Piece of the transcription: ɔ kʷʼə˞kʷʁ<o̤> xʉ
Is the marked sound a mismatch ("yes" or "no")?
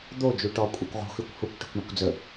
no